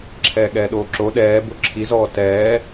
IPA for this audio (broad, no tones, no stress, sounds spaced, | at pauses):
ǁʰ ɛː ɠ ɛː ɗ oː ǁ o ɗ ɛː b ʊ ǁʰ i z ɔː t ɛː